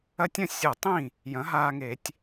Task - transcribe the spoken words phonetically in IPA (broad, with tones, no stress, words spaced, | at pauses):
ɐ˧tʲɐ̃˥˩ sʲʊ˧˩˧tˤĩ˥˩ | jɐ̃˩˥ɦaː˧ŋe˧˩˧tʲ